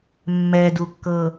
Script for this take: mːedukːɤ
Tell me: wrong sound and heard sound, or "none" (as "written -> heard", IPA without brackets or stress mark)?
e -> ɛ